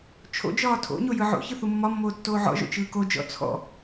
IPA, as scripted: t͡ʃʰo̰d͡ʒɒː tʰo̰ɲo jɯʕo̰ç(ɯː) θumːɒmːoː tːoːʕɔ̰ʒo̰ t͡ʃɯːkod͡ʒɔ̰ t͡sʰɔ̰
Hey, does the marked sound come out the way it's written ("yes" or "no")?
no